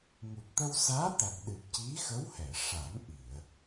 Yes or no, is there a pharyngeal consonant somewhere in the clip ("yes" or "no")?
no